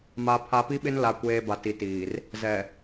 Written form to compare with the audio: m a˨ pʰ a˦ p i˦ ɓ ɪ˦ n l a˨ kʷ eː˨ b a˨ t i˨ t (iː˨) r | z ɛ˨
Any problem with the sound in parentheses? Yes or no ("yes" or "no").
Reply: no